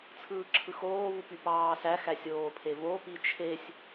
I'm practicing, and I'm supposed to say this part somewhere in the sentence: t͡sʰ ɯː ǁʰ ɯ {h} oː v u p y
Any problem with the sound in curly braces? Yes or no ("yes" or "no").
yes